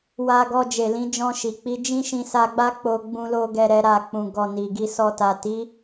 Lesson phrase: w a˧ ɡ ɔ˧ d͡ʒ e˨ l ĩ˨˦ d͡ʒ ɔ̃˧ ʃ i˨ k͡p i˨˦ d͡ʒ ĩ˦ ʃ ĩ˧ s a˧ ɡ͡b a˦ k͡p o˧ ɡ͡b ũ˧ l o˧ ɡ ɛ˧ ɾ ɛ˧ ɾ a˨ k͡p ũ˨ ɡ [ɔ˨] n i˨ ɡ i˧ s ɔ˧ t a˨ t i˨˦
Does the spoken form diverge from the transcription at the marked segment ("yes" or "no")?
no